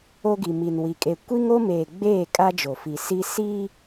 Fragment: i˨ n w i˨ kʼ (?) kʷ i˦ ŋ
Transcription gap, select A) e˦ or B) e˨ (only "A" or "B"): B